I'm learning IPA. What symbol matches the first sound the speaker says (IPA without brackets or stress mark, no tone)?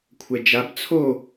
kʷʰ